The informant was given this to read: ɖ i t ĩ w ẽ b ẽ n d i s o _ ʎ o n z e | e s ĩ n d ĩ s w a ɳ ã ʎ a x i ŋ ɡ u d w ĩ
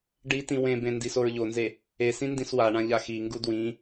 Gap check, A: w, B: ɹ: B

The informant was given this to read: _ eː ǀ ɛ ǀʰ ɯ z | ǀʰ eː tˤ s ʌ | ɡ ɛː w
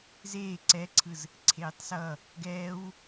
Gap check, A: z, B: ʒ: A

